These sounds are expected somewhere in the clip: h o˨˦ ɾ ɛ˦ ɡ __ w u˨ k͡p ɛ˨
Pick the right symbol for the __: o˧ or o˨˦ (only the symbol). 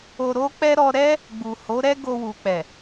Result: o˧